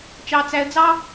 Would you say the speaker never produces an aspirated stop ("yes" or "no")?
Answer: yes